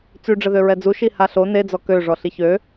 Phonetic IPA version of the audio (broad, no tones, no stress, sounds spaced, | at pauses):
t͡s y ɖ͡ʐ ə ð ø ɹ ɛ d͡z u ʃ i h a ɬ o n e d͡z ɔ k ø ʐ ɔ ɬ i ç ø